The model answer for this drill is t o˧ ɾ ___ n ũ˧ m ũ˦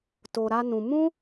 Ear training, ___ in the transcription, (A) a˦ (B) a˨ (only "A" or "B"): A